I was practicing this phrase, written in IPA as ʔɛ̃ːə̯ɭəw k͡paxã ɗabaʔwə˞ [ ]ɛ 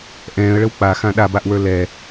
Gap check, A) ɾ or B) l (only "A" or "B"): B